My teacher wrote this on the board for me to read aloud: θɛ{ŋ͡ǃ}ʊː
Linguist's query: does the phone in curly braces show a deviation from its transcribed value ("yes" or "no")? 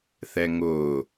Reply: yes